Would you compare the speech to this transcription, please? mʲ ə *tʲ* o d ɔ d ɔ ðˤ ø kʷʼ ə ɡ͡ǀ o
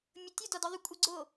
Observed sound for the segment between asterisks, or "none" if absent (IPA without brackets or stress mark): tʲ